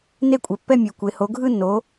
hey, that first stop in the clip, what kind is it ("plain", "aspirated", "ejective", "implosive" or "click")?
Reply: ejective